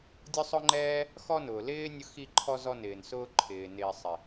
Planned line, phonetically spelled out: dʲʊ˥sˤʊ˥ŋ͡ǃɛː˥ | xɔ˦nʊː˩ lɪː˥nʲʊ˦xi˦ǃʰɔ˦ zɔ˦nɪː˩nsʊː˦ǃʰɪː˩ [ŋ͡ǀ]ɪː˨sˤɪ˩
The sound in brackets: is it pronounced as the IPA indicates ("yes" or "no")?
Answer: no